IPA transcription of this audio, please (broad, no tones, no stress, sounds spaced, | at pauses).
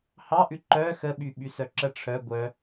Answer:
h ɑ ʔ ʉ ǃ œ x ə ɓ y ɓ y s œ ǁ ə ʈ͡ʂʰ œ ɡʷ œ